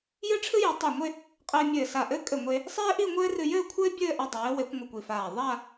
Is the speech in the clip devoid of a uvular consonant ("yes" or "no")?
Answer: no